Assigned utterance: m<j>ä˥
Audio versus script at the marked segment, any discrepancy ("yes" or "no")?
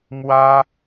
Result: yes